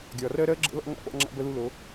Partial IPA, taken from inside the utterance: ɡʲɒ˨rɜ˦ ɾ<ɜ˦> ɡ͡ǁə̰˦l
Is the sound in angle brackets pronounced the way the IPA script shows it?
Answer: yes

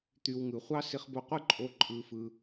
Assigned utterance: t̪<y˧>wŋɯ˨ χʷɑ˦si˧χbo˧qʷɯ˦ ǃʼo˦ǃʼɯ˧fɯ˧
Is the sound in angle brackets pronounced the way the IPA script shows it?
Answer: yes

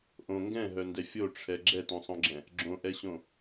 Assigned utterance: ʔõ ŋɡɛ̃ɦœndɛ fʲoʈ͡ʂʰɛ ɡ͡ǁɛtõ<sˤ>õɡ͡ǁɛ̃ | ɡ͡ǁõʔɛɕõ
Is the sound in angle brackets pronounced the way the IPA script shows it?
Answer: yes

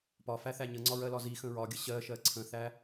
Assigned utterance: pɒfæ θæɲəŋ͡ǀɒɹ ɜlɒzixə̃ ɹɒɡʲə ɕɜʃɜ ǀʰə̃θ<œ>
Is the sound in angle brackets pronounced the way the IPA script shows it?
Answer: no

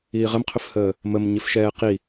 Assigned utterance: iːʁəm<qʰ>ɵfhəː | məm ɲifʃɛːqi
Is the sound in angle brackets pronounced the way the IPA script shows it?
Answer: yes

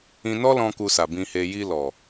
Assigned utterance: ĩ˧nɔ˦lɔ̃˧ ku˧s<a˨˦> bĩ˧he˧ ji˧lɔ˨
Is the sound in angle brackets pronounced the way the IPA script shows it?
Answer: no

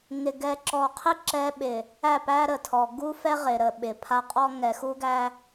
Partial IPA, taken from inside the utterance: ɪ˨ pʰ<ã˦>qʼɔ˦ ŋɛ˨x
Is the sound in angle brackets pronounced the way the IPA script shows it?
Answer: no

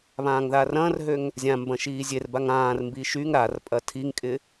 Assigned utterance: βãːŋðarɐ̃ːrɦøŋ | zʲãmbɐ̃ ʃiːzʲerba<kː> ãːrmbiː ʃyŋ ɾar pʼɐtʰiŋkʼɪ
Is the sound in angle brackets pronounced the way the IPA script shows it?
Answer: no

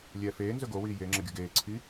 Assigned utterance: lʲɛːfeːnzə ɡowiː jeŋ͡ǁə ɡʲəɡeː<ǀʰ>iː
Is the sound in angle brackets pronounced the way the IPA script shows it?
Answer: yes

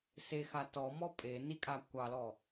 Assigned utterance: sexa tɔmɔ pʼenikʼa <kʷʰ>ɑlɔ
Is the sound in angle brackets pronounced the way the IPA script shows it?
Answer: no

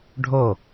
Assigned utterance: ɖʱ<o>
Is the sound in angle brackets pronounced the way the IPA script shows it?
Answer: yes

